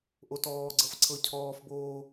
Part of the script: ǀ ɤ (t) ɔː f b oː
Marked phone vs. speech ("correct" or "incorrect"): incorrect